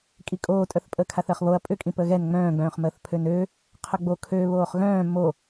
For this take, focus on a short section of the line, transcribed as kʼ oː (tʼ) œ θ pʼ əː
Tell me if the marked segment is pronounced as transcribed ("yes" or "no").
yes